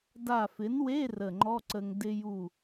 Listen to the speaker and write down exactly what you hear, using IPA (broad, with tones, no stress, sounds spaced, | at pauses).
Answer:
d a˧˩ f ɪ˩˥ n w e˧˥˧ r ə˧˩ ŋ͡ǃ ɔ˧˥˧ ǀ ə˧ ŋ d ɪ˧ j u˧˩